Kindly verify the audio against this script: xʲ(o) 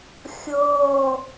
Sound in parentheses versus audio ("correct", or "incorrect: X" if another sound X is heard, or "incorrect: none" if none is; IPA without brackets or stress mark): incorrect: ɤ